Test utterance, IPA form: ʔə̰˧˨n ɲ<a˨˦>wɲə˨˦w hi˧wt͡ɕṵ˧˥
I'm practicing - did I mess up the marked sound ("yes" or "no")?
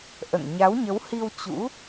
no